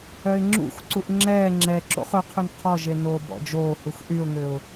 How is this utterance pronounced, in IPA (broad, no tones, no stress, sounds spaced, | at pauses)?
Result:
œ ɪ̯ ŋ͡ǁ ṵ x ǀ u ʔ ŋ͡ǁ ɛː ŋ͡ǁ ɛ ǁ o̰ χ ɵ qʰ ʉ n qʰ ɔ ʒ e n oː b ɔ̰ d͡ʒ oː h u x ʔ y ʊ̯ ŋ ø ʊ̯